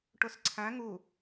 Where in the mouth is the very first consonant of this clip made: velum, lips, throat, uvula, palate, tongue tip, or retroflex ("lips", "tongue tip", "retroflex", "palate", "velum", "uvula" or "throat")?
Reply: retroflex